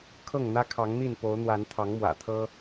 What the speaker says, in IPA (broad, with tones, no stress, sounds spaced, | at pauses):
kʰ ɤ˥˨ ŋ n̪ ä˦ kʰ ɑ˨˦ ŋ n̪ i˥˨ n p o˨˦ ʊ̯ n̪ w a˨˦ n t̪ʰ ɑ˨˦ ŋ m w ä̰˨˩ t̪ʰ ɤ˦